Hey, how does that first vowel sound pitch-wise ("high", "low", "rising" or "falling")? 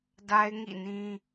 high